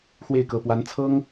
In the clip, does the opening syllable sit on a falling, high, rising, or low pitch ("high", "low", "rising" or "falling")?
falling